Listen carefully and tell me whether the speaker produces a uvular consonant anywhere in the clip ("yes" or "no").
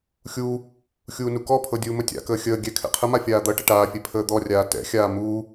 yes